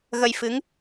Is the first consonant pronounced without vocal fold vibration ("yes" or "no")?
no